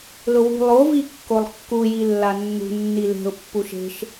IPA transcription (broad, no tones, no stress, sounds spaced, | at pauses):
l ʊ w ṳ lˠ o v i kː o lˠ kː u j i lː a nː ṳ nː i l e̤ ʊ̯ pː u ʃ e̤ ʃ